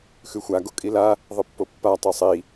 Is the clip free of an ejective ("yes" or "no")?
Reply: no